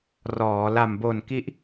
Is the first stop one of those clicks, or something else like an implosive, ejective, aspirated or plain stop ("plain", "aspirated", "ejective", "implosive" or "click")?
plain